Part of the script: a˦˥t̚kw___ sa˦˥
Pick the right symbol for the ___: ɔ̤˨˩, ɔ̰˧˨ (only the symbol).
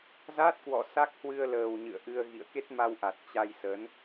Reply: ɔ̰˧˨